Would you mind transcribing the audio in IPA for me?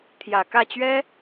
t̪ʰ j ä˨˩ k ä˥˩ t͡ɕ ɥ ɛ˥

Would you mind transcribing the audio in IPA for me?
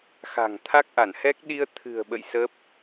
x a̤˨˩ ŋ t̪ʰ a˦˥ k̚ ʔ a˧˩ n h ɛ˦˥ k̚ ɗ i˧ ə̯ t̪ʰ ɨ̤˨˩ ə̯ ɓ ə̰˧˨ j s ə˦˥ p̚

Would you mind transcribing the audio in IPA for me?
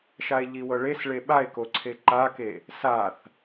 ʃ a e̯ ʎ i w ɤ ɭ e s ɭ e ɓ a e̯ k o ǀʰ e ǃ a k e | s a θ

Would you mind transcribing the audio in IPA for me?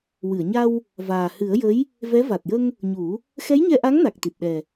w ɨ˨˩˨ ə̯ ɲ a˧ w | v aː˨˩ h ɨ˨˩˦ ə̯ j ə˧˥ j | v ɛ˧˥ v a˨˩ t̚ j ə˧ ŋ | ɲ u˨˩˦ | x ɛ˧˥ j ɲ ɛ˧ ʔ a˧˥ ŋ n a˨˩ k̚ t̪ i˨˩ t̚ ɗ ɛ˨˩

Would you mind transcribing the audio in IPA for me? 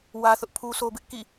w ä˦ θ ʊ˦ ʔ pʰ u˦ sʰ o˦ b ɪ˦ ʔ k ḭ˦˨

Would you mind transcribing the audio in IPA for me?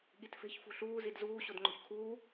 ɠ i t f e̤ ç f ṳ ɬ uː z i d z uː ɕ o d ŋ͡ǃ o̤ ç kʰ uː

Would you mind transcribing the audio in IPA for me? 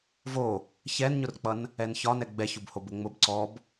v o | ç ɛ n ɲ ʊ r k͡p ʌ n | ɛ n ç ɒ n ɛ ɡ͡b ɛ ç ʊ b h o b ʊ ŋ͡m ʊ b ǀ ɔ b

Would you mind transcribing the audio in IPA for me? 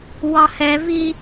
w ɑ h ɛ v i

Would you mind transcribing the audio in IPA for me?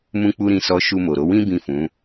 m ũ˦ k͡p u˦ ɾ ĩ˦˨ s ɔ˧ ʃ u˧ m o˨ ɾ o˨˦ w ĩ˦ b ĩ˦˨ f ũ˨˦

